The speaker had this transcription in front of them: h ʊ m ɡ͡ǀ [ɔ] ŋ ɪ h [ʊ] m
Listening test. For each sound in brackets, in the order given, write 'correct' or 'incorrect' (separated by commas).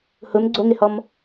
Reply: incorrect, incorrect